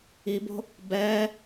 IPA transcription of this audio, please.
i b o̤ | b ɛ

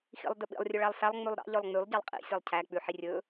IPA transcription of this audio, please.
x ḭ lˠ d ɵ ɓ ḭ lˠ rʲ ɵ ɭ æ lˠ s æ lˠ ŋ͡m ʉ lˠ ɾ ɑ̰ ʎ œ lˠ ŋ͡m y lˠ ɟ ɑ lˠ qʼ ḭ sʲ æ lˠ cʰ æ k͡p ʉ ħ i rʲ ɵ

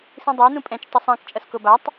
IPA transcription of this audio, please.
s ĩ dˤ a n ũ pʼ ɛ̃ t͡ʃ tˤ o sˤ ã k t͡ʃʼ ʌ s k o b a tˤ

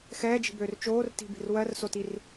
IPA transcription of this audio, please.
x ɛː d͡ʒ i̤ b øː r t͡ʃ oː r t i̤ b i̤ r w ɜ r s o t i r

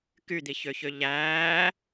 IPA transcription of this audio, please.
k y d̪ i ç ø ç ø ʎ æː

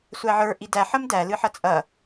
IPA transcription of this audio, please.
sʷ æ ʕ ə˞ ʔ i d æ ħ ɐ m d æ l ɨ ħ ɐ t͡sʼ ɐ

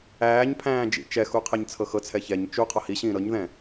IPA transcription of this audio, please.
æː ɲ pʰ æ̃ː d͡ʒ ḭ t͡ʃ ɛ x u qʰ ɛ ɲ t͡sʰ ɤ x ɤ t͡sʰ ɛ ç ɛ ɲ t͡ʃ u qʰ ɒ h i ɕ ĩː ɾ ɤ ɲ ð ɛ̃

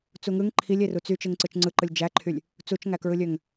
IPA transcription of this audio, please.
t͡s u ŋ ɯ ŋ ǃʰ i lʲ e r u t͡s y t͡ʃ ɯ ŋ ǀ ɯ t͡ʃ ŋ͡ǀ ɯ ǃ ɯ lʲ d͡ʒ æ ǃʰ y lʲ | t͡s u t͡ʃ ŋ æ k ɹ ɯ lʲ ø ŋ

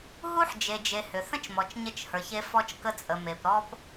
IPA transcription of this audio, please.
ɦ u˦ ħ d͡ʒ e˨ d͡ʒ e˨ h ʏ˨ θ ə̃˦ t͡ʃ m ɔ˨ t͡ʃ ɲ ə˦ t͡ʃ h ə˞˨ ç e˦ f ɔ˦ t͡ʃ k ə˦ t͡sʼ ə˨ m e˨ p ɾ ɔ˦ p

